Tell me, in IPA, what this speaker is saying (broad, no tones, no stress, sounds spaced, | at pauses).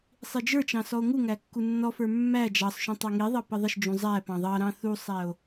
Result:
sˤ i d͡ʒ ə˞ t͡ʃ ɑ̃ s ɔ o̯ ŋ u ŋ æ kː u nː ɔ f ə˞ mː æ d͡ʒ ɑ sˤ ʃ ũ tˤ ɑ ŋ i ðˤ ɑ p ə ðˤ ə ʃ d͡ʒ ũ zˤ æ p ɑ̃ ðˤ ɑ ɾ ɑ̃ θ u sˤ æ o̯